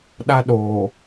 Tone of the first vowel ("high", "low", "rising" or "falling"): high